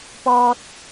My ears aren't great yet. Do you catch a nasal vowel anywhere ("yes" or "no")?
no